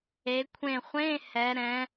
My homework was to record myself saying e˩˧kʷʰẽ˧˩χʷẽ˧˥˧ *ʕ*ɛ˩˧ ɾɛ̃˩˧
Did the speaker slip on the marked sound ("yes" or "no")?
yes